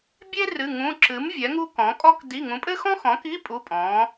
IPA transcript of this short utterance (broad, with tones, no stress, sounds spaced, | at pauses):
bʲ e˥ r ɨ˧˥˧ ŋ ũ˧˥˧ ǁ ɨ˨˥ m vʲ ɛ˨˥ ŋ u˥ k ɔ̃˨˥ kʼ ɔ˥ k d i˧˥˧ ŋ ũ˨˥ pʼ ɘ˥ x ɔ̃˥ x ɔ̃˨˥ k i˧˥˧ pʼ u˧˥˧ pʼ ɔ̃˨˥